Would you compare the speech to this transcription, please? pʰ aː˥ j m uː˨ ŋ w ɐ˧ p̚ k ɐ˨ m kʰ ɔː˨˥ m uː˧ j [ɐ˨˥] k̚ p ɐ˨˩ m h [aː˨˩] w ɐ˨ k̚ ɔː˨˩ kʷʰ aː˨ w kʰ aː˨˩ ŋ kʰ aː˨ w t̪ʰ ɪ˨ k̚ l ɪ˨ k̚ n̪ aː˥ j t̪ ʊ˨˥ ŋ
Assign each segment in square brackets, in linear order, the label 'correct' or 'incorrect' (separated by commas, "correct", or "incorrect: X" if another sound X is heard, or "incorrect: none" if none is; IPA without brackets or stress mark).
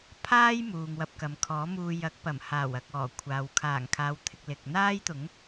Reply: correct, correct